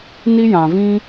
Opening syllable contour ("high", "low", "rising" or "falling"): high